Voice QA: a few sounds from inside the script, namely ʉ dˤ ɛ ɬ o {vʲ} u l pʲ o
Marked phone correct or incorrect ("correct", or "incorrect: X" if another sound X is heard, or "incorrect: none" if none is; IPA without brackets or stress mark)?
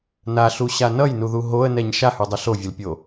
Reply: correct